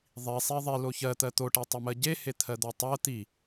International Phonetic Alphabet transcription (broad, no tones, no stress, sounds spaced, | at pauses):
ðˤ i sˤ e ðˤ i l o ç ɜ t̪ ɜ t̪ o ʈ e tˤ ɜ m ɜ ɟ e h e t̪ʰ ɜ d̪ o tˤ ɜ t̪ i